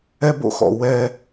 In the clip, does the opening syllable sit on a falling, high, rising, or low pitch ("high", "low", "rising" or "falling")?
high